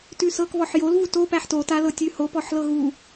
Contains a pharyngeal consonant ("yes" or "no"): yes